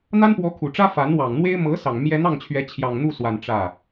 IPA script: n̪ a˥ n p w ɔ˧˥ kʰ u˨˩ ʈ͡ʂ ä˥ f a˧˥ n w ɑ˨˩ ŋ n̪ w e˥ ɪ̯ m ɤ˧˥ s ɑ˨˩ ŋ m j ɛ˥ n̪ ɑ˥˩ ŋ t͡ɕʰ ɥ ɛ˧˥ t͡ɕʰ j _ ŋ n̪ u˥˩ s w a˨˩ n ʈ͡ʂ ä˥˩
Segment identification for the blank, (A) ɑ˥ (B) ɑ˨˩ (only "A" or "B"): B